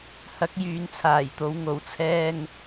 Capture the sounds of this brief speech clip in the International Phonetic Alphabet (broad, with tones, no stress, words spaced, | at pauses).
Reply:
hɐ˨˥k̚jyː˨nt͡sʰaː˨˩jt̪o˨˧w ŋo˨˩wt͡sʰɛː˥ŋ